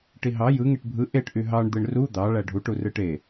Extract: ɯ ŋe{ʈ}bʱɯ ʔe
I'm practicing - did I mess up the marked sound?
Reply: no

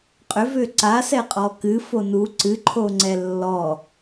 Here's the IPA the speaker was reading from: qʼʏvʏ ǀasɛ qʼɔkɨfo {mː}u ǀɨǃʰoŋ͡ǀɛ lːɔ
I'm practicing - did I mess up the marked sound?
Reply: yes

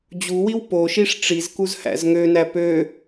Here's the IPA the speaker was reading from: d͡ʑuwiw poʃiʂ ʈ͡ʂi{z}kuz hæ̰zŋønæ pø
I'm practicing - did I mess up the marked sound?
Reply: no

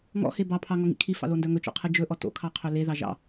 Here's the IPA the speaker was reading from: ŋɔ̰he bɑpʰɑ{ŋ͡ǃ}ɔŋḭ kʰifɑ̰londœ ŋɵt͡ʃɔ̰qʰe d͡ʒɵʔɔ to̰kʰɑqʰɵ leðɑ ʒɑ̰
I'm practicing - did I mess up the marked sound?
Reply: yes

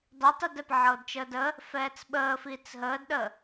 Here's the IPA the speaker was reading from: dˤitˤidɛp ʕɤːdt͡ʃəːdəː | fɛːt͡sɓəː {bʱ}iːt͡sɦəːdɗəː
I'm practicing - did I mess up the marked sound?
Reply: yes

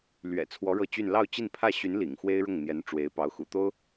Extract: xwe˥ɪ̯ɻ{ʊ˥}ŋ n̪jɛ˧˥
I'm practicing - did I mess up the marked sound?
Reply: yes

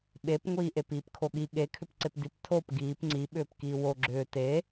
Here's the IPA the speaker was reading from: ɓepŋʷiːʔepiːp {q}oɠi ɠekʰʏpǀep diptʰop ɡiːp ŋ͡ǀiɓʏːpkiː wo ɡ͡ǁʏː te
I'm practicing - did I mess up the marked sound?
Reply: yes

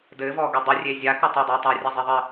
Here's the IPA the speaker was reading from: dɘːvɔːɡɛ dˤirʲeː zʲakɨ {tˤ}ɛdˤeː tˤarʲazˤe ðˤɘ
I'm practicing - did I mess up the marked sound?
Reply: no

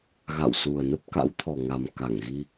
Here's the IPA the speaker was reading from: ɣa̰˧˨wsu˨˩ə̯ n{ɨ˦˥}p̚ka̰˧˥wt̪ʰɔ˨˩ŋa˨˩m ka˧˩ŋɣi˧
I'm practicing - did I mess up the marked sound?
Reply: yes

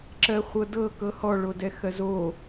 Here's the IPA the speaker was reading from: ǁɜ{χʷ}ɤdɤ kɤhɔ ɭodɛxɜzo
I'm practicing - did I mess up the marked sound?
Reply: no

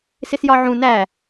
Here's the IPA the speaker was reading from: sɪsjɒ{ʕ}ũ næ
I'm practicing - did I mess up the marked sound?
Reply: no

